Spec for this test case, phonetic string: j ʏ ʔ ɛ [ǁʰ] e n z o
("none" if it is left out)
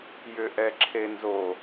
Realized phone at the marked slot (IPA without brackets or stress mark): ǁʰ